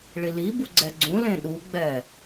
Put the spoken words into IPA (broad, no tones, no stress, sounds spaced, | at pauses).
ɭ i l i b u ɡ͡ǀ ɛ ɡ͡ǀ ũ l ẽ ɗ u ɡ͡b ɛ